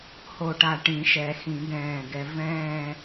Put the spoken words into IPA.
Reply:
h o˧˩ ʈ a˧˩ ʈ ĩ˨˩˦ ʃ ɛ˨˩˦ x ĩ˨˩˦ ɡ ɛ̃ː˧˩ ɡ ɛ˧ v ɛ̃ː˥˧

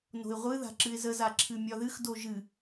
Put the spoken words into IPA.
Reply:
n o̤ ɪ̯ ʁʷ ɨ ð a̤ ǁ ɨ ɪ̯ z ə z a ǁʰ ɨ mʲ ɒ ð ɨ x d o ʒ ɨ

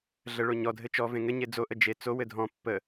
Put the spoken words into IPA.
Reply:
ɮ ə ɭ o ɲ ɔ dʱ ɘ t͡ʃ ɔ v ẽ ŋ ɘ ɲ e d͡z o ʔ ə d͡ʒ e t͡s o w ɘ dʱ ɔ̃ pː ə

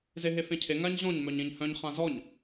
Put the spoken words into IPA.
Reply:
z e ɦ e f ẽ cʰ e ŋ a ɲ ʑ ɔ̃ ɲ m œ ɲ ẽ ɲ h œ̃ ɲ χ ã z ɔ ɲ

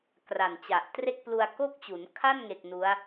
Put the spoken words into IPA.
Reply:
k r a˨˩ n t͡ɕ a˨˩ ʔ t r e˥˩ k̚ p l u˧ a̯ k o˥˩ k̚ t͡ɕ u˩˦ n kʰ a˥˩ n ŋ e˨˩ k̚ n u˦˥ a̯

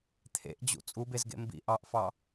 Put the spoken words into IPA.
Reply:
t̪ʰ ḛ ʔ d͡ʑ ṵ t͡sʼ u b e z ɡ ḛ m b ḭ ʔ ɑ ʔ f ɑ

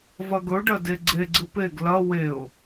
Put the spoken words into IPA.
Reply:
v ɐ ɡ ɵ ɖ ɐ d e ɡ͡ǀ e ɡ͡ǀ ɨ p e ɡ l ɐ w e ʊ̯

